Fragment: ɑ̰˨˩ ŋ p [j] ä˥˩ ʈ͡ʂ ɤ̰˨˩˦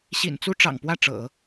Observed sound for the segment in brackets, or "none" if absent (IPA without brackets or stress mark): w